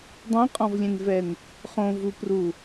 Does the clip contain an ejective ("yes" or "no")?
yes